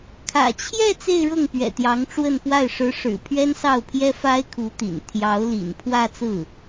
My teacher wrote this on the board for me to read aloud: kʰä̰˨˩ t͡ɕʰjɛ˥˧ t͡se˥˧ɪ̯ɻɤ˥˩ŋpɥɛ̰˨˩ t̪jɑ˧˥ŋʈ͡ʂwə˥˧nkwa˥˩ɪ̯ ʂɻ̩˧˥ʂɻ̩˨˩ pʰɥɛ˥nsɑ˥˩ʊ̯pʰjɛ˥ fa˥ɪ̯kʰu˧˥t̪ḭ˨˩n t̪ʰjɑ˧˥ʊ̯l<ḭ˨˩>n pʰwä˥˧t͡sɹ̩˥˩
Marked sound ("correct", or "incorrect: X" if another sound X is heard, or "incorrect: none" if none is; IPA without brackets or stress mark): correct